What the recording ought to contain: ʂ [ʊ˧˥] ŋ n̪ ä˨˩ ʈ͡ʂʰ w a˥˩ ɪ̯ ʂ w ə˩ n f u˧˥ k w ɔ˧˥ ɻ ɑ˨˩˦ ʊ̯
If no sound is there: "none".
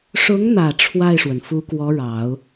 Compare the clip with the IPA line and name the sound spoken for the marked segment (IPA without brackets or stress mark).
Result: ʊ˧˥